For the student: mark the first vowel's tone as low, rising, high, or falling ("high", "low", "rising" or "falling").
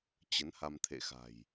rising